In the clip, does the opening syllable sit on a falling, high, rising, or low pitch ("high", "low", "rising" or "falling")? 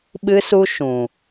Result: high